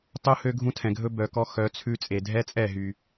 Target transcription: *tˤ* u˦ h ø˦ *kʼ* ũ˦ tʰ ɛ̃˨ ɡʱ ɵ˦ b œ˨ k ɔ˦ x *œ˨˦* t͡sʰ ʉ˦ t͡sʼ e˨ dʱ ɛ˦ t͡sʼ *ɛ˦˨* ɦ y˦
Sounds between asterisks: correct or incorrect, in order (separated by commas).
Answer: correct, incorrect, correct, correct